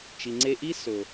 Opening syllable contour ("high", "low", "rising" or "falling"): low